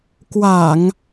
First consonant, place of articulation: velar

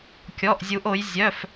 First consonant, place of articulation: velar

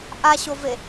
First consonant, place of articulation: glottal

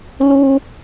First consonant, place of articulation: alveolar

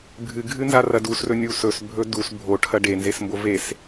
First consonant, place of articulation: labial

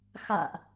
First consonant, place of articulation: velar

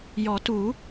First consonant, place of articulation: palatal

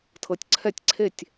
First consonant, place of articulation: alveolar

